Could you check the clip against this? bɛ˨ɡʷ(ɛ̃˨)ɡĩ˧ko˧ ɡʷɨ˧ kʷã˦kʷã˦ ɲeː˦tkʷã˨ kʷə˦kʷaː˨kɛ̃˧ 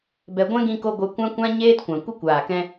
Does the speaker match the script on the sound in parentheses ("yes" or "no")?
no